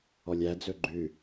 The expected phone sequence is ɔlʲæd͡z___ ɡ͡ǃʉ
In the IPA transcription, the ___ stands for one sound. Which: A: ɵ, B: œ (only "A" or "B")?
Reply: A